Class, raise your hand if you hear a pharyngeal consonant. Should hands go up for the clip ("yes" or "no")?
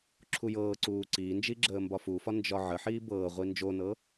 yes